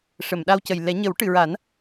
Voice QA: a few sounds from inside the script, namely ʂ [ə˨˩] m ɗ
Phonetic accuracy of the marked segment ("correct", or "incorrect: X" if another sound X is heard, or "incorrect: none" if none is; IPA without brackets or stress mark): incorrect: ə˨˩˨